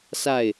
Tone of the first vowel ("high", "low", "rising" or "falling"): falling